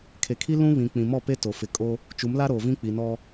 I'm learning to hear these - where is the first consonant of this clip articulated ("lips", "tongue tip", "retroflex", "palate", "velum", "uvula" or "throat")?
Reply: velum